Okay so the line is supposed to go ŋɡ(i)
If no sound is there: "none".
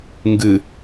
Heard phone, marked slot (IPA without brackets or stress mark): ɨ